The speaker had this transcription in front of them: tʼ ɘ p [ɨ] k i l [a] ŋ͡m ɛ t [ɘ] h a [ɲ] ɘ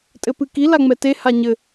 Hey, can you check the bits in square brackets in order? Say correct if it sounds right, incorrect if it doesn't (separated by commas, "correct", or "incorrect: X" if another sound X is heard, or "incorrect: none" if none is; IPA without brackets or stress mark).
correct, correct, incorrect: e, correct